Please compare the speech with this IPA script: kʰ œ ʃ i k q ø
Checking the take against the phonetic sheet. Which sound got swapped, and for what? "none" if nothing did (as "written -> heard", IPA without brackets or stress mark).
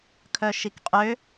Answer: q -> qʼ